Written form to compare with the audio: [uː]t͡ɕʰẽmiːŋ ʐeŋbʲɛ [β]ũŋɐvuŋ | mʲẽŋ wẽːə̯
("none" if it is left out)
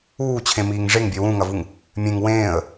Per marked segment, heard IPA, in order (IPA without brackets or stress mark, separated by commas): uː, w